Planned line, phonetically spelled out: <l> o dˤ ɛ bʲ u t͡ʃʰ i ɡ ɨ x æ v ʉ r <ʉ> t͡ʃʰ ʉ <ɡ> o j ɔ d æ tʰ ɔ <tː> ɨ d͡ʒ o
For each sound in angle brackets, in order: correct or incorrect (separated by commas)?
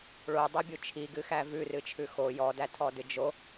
incorrect, incorrect, incorrect, incorrect